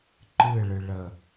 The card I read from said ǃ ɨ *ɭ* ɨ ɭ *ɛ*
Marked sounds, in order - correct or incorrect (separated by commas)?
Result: correct, incorrect